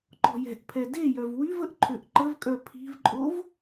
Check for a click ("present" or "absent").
present